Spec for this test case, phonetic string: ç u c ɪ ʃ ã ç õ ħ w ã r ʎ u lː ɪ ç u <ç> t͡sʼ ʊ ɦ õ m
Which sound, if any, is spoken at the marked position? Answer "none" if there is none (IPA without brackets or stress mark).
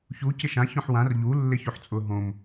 ħ